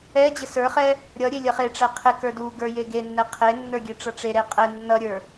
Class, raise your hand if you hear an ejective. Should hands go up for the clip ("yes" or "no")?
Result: yes